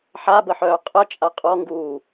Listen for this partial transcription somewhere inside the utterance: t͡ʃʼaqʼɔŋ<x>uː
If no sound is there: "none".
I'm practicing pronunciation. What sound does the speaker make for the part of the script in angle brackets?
ɡ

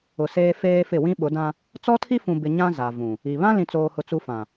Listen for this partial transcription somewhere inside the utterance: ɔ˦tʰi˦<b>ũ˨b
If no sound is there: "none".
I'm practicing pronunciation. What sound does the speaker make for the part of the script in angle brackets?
f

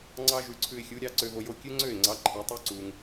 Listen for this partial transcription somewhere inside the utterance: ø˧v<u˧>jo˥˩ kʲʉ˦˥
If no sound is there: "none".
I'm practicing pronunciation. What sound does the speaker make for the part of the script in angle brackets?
o˧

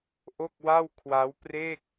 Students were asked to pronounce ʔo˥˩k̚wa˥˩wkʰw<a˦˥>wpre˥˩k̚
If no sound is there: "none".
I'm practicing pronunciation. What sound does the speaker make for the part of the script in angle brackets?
a˦˥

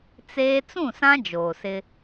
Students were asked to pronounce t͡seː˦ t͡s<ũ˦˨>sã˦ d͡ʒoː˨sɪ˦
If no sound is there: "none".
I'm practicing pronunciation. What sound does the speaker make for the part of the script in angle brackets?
ũ˦˨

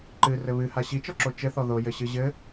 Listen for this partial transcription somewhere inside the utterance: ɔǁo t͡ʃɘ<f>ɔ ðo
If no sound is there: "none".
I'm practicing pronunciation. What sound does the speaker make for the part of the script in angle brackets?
θ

